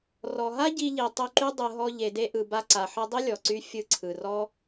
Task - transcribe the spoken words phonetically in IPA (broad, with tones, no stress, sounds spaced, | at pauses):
r ɔ˨ ɦ a˦ ɟ i˧ ʎ i˨ tˤ u˧ ǃ y˦ dˤ ɯ˨ ɦ ɔ˧ ʎ e˨ d e˧ ʔ ɯ˨ b a˧ ǀ a˨ ħ ɯ˧ dˤ i˦ lʲ ɔ˨ ǀ y˧ fʲ ɯ˧ ǀʰ ɯ˨ r ɔ˦